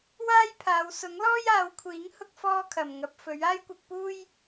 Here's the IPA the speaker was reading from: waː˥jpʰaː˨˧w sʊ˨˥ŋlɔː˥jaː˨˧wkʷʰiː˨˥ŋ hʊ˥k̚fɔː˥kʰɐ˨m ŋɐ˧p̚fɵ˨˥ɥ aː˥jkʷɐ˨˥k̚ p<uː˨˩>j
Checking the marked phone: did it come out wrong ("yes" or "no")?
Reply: yes